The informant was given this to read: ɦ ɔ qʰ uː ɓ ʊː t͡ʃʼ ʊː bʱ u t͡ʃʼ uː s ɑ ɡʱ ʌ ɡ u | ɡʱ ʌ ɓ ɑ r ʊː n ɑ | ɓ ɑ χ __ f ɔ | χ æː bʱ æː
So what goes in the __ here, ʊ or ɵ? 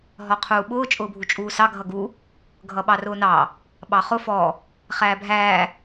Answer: ʊ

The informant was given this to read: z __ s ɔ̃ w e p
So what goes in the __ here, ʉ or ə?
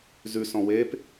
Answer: ʉ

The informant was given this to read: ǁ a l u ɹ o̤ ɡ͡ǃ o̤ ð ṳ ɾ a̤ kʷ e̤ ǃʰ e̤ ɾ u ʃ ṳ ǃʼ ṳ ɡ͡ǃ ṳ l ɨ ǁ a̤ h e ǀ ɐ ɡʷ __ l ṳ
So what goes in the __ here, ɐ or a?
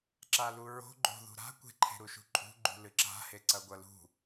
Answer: ɐ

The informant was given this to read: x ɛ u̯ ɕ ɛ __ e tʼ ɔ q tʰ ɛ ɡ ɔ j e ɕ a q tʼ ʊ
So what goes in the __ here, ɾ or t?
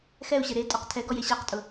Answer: ɾ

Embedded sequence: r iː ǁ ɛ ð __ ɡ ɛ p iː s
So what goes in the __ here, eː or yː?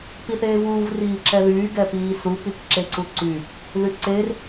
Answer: yː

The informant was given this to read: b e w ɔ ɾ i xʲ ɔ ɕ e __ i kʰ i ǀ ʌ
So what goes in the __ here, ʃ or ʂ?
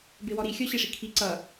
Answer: ʂ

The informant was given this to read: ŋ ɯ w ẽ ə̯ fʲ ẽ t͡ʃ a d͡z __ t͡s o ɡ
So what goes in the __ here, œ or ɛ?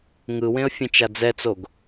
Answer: ɛ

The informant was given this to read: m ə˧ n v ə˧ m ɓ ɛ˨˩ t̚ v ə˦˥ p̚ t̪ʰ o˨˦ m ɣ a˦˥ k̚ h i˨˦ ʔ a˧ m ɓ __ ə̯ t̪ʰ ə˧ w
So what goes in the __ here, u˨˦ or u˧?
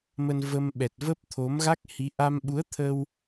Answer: u˨˦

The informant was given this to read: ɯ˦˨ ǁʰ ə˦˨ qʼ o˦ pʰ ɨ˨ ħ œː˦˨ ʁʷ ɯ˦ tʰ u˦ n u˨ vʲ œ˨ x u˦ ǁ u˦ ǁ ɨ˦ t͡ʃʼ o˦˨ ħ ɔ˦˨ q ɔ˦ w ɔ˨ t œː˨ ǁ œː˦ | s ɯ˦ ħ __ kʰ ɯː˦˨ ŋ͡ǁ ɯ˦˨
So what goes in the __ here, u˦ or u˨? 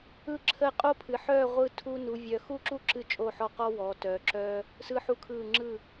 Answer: u˦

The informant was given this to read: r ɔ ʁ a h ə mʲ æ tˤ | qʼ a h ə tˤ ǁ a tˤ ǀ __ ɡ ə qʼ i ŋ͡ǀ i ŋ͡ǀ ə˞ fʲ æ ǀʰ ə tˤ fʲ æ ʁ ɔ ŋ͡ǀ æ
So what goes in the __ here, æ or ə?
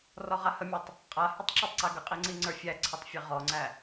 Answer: æ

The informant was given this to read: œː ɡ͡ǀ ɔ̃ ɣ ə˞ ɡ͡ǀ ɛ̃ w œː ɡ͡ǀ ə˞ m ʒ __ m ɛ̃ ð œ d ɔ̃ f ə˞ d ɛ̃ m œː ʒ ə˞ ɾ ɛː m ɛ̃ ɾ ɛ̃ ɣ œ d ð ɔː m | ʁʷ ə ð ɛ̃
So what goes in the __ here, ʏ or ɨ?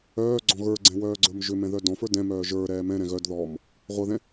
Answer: ʏ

